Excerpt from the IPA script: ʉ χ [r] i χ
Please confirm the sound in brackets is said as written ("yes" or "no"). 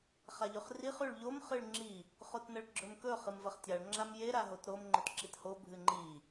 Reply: yes